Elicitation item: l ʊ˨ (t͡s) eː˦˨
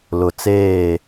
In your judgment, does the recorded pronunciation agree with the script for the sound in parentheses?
yes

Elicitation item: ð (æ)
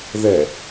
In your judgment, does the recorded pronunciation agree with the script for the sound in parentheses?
no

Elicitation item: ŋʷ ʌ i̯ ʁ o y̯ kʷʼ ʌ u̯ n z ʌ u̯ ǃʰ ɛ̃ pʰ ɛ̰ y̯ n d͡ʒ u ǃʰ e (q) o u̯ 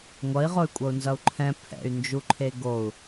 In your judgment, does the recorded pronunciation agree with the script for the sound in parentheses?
no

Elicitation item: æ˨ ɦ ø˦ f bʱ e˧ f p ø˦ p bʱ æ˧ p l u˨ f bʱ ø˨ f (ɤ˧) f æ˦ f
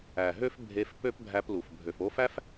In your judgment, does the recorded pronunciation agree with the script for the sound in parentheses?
no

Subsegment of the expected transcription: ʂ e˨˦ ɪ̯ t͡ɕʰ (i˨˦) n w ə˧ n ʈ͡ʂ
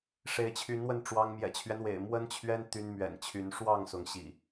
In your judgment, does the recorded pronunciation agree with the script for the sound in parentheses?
no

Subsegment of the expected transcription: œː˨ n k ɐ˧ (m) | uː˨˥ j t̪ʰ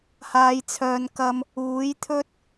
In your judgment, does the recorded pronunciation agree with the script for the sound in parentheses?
yes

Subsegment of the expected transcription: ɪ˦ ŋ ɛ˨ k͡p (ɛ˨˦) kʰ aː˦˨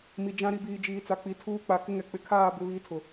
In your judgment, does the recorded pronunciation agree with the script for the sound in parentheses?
no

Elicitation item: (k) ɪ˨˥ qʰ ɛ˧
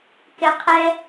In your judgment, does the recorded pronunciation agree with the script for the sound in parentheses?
yes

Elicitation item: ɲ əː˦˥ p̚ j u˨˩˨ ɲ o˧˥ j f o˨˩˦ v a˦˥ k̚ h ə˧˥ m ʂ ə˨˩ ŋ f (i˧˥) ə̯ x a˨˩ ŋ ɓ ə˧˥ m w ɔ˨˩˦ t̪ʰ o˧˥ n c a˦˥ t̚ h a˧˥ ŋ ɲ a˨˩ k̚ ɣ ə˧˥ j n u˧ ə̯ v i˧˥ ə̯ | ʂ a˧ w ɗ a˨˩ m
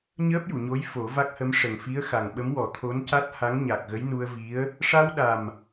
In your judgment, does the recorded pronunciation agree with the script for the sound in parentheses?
yes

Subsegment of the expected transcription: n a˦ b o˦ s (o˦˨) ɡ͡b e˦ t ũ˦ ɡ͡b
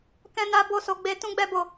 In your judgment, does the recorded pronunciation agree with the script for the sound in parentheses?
no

